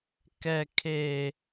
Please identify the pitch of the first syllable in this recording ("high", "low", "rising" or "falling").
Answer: high